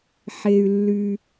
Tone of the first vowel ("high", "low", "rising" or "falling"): low